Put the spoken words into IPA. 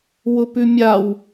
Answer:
w ʊ p ʉ mʲ a w

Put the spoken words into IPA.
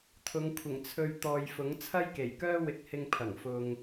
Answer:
t̪ʰ ʊ˨˧ ŋ kʷʰ ɪ˨˩ ŋ t͡sʰ ɵ˨ ɥ t̪ ɔː˨ j f ʊ˨˥ ŋ t͡sʰ ɐ˥ j k e˨˩ j k œː˥ w ɪ˧ k̚ h ɪ˧ ŋ pʰ ɐ˨˩ ŋ f ʊ˨ ŋ

